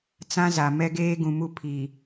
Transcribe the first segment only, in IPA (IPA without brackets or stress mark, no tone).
t͡s